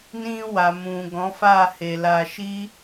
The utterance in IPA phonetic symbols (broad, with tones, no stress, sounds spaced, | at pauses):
n ĩ˧ w a˨ m ũ˨ ɡ ɔ̃˨˦ f a˦˨ h e˨ l a˧ ʃ i˦